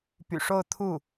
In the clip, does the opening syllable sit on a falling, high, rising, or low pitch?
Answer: low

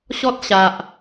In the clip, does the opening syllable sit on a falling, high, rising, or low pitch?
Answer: high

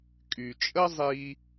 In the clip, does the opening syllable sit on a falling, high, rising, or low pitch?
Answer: low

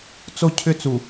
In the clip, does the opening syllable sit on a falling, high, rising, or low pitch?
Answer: high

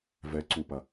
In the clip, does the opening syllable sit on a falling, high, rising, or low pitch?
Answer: rising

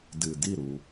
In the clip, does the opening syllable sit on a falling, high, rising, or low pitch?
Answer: low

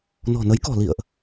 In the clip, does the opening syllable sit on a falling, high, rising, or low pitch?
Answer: low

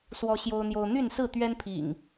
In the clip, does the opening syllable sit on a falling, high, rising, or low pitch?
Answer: high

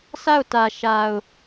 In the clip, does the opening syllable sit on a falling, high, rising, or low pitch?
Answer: falling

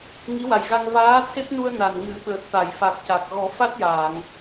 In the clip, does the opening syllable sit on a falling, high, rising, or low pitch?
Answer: rising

